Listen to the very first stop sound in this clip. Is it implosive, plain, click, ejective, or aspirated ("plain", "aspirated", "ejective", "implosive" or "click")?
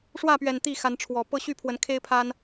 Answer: plain